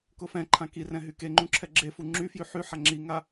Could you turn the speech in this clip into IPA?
kʊfɛ̃ǃʰã kirɛ̃ ɦykeŋ͡ǃũ ǁʰɛɡ͡ǁefu ŋ͡ǁy fjyħyħa ŋ͡ǁiŋa

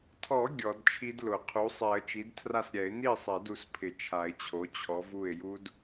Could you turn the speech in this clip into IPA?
tʰɔ˨˩˦ ɡʲɔ˨˩˦dt͡ʃʰi˦˥dlʊ˨˩˦ qʰu˩˥sˤɛ˨˩˦ə̯t͡ʃi˩˥dtʰra˥˩s ɾʲɛ˨˩˦ɪ̯ni˥˩sˤɛ˨˩˦d u˩˥spʰɪ˨˩˦ t͡ʃʰa˨˩˦ɪ̯t͡ɕʰo˩˥ t͡ɕʰɔ˩˥vu˥˩ɪ̯ ju˦˥d

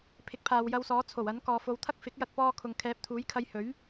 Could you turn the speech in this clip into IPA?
pʰɪ˨˥k̚pʰaː˨wjɐ˧wsɔː˨˥ t͡sʰo˨˩w ɐ˨˥n kɔː˨fo˨˧wt̪ʰɐ˥k̚ fɪ˨˥k̚jɐ˧t̚pɔː˧kʰʊ˨ŋ kʰɛː˨˥p̚t̪ʰuː˨˥jkʰɐ˧j hɵ˨˥ɥ

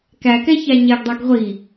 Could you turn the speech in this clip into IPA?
kækɛçæ ɲɛɡdˤeɡ ʁʷi

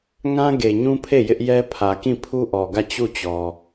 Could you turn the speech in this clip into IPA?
ŋã˦ɡe˨ɲũ˦pʰe˦˨ jɪ˦ʔjɛ˦ pʰä˨kĩ˦˨ pʰu˦ʔɔ˨ɡä˦˨ t͡ɕu˦˨t͡ɕɔ˨

